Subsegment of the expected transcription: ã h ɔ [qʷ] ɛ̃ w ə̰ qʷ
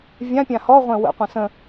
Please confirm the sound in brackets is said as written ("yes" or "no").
no